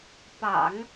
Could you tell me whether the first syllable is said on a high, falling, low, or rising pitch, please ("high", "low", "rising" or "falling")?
low